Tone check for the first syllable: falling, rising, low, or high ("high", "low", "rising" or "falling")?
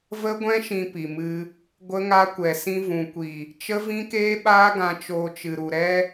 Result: high